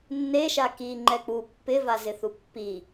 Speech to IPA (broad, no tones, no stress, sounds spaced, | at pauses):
nː e ʃ a k i ŋ͡ǃ ɛ k͡p u pː ɪ v a z ɪ θ u pː i